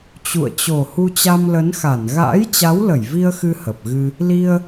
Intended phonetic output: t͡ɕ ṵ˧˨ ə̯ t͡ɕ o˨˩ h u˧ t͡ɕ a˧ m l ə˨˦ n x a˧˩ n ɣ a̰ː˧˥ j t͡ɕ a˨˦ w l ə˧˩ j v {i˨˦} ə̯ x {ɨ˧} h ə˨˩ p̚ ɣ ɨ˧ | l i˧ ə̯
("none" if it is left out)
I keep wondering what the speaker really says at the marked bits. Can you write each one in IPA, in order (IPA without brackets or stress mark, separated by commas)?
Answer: i˧, ɨ˧